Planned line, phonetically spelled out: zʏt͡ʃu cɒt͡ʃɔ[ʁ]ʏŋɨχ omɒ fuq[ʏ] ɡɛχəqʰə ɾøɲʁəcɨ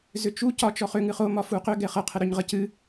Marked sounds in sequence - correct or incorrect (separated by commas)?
incorrect, correct